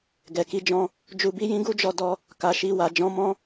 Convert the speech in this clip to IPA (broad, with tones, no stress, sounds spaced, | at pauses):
ɡ ɛ˨ k i˧ d͡ʒ ɔ̃˧ | d͡ʒ u˧ b i˦ j ĩ˦ ɡ u˦ d͡ʒ ɔ˧ d ɔ˧ | k a˨ ʃ i˧ w a˨ d͡ʒ ɔ̃˨˦ m ɔ̃˦